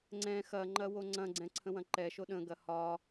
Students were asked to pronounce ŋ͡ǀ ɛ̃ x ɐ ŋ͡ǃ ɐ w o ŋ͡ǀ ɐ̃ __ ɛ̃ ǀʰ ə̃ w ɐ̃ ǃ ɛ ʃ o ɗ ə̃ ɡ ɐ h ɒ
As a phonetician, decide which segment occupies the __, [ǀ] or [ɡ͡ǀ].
ɡ͡ǀ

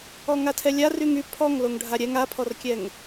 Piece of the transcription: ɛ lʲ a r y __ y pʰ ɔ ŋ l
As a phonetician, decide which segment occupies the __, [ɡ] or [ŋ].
ŋ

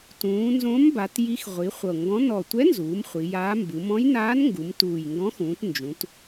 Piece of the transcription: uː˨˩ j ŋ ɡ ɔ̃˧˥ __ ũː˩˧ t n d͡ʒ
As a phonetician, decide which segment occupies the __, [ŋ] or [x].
x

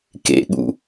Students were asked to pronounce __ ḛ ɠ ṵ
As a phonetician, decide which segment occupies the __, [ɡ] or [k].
k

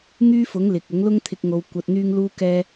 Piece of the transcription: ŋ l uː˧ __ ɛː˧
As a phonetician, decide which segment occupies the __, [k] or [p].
k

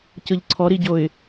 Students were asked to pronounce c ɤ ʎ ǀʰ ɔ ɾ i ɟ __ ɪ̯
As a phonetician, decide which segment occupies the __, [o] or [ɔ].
o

